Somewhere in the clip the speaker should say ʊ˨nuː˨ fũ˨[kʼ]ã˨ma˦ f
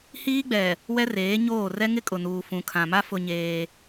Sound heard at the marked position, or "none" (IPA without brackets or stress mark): kʰ